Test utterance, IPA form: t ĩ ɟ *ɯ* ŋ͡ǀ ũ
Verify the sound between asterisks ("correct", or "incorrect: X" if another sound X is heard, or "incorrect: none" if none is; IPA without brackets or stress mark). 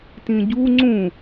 incorrect: u